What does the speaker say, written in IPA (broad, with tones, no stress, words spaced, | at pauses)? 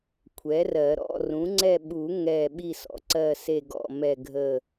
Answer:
kʷʰɛ˩˥rɜ˨˩˦ ɾɔ̰˥˨rũ˩˥ŋ͡ǀɛ˥˨ ɓu˨˩˦ ŋɛ˥˨ ɓi˥˨sɔ̰˩˥ǀɜ˥˨se˥˨ ɡɔ̰˥˨mɛ˥˨ɡʱə˥˨